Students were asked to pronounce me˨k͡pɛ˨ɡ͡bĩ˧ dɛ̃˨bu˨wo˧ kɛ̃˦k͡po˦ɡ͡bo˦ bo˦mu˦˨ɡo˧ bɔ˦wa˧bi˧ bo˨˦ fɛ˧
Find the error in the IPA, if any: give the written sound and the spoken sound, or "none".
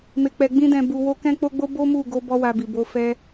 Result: i˧ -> i˨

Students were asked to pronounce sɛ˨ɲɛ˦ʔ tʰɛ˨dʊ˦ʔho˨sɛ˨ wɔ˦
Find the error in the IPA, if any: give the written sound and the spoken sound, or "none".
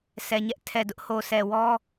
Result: none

